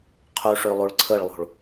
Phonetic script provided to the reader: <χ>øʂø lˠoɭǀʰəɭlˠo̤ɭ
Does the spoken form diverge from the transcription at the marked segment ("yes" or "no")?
yes